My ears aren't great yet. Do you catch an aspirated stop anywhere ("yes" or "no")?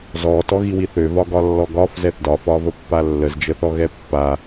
no